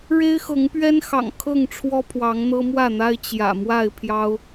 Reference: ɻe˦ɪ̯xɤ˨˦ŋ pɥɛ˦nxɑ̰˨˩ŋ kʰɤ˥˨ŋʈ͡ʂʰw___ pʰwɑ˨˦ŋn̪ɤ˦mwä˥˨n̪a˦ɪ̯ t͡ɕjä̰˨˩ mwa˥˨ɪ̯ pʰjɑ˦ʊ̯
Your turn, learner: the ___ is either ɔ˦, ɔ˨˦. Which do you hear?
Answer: ɔ˦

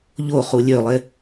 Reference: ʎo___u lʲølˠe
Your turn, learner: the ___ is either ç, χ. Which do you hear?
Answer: χ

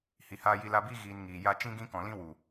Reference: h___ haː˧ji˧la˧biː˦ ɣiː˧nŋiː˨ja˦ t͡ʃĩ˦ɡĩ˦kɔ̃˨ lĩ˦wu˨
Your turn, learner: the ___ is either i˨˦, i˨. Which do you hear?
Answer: i˨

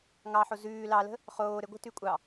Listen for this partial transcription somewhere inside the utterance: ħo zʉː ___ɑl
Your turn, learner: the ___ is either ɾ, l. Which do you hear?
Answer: l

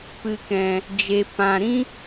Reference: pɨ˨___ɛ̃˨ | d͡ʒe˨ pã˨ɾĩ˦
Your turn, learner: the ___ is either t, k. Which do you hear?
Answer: k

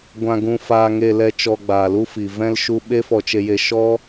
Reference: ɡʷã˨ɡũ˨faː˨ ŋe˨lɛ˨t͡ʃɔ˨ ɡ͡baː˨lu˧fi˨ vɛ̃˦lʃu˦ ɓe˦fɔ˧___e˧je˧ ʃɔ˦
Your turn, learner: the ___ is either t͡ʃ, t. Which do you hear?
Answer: t͡ʃ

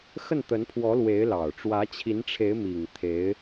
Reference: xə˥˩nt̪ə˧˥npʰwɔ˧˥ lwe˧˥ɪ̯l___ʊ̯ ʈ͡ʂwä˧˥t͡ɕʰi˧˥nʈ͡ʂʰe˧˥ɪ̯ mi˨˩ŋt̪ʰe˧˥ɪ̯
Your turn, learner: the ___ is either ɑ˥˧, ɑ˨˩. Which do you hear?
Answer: ɑ˨˩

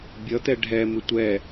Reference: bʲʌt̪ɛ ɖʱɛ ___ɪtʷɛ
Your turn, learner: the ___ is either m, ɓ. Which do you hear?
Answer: m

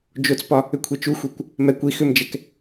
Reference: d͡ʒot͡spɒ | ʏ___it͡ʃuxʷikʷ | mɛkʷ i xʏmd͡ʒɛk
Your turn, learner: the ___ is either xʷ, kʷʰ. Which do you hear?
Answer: kʷʰ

